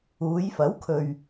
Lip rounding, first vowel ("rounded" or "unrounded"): rounded